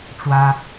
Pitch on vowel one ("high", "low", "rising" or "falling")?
high